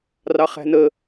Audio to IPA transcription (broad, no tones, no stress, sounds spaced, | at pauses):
r ɑ χ æ̤ n ə